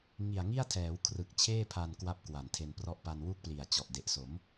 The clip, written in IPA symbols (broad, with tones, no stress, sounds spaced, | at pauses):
ŋ i˨˩ a̯ ŋ i˥˩ a̯ tʰ ɛː˩˦ w kʰ r ɯ˨˩ k̚ t͡ɕʰ eː˥˩ pʰ a˧ n k w a˦˥ p̚ k w a˨˩ n tʰ e˧ n p r ɔ˥˩ ʔ p a˧ n w u˥˩ k̚ p l i˨˩ a̯ t͡ɕ ɔ˨˩ ʔ d e˨˩ ʔ s o˩˦ m